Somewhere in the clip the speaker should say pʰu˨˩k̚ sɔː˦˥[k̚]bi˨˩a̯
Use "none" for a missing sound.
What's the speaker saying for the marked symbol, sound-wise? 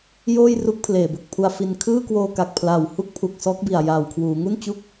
k̚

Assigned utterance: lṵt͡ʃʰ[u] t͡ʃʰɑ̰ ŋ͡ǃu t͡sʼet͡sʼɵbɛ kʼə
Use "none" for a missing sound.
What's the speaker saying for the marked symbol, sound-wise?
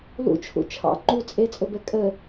ṵ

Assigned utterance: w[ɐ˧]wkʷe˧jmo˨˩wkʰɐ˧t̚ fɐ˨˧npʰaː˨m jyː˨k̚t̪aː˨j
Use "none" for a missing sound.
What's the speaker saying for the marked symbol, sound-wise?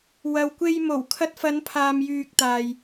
ɐ˨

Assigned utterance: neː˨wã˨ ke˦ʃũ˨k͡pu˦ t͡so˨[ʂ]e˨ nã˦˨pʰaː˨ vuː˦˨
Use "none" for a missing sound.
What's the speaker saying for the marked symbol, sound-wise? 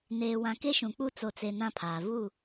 t͡s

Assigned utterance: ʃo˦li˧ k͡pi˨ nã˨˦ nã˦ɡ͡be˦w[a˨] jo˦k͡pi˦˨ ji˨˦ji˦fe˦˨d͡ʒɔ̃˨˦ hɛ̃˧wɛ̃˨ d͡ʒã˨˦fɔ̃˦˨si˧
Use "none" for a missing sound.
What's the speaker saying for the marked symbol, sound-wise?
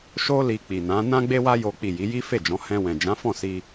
a˦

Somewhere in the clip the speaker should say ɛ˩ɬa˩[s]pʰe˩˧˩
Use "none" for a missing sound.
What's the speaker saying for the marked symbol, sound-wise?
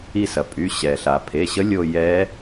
none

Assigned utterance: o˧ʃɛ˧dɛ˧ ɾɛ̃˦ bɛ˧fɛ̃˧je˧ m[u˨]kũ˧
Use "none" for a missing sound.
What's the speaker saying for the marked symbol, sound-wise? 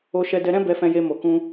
o˨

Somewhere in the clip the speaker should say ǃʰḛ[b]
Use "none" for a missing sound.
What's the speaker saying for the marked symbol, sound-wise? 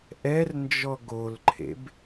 b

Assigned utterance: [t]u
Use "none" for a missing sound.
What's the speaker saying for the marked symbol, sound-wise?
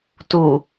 t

